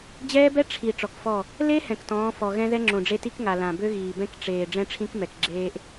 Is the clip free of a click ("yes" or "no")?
no